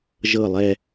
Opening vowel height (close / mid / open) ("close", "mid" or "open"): mid